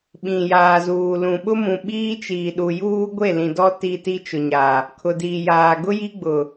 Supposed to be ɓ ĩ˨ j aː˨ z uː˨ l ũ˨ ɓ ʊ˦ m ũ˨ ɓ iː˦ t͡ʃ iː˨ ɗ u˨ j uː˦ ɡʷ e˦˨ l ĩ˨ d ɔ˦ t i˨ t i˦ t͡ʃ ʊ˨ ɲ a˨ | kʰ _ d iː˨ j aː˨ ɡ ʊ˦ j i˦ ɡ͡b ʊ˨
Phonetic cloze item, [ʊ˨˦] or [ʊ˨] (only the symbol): ʊ˨